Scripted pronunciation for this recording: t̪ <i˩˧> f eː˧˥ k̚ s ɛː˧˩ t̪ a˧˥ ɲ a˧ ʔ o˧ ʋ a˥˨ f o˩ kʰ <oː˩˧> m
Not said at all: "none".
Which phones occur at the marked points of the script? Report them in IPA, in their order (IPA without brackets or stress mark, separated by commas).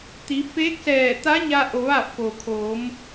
i˩˧, oː˩˧